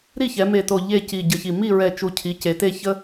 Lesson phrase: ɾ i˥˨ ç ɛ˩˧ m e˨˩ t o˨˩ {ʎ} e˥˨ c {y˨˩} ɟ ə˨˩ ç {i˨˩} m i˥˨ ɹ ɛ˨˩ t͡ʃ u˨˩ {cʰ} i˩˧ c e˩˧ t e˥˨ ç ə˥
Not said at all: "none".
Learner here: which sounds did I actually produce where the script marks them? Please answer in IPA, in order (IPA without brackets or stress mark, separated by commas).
ʎ, i˨˩, i˨˩, cʰ